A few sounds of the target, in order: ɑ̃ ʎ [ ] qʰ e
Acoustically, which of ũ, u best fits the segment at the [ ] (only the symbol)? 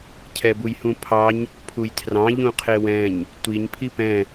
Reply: ũ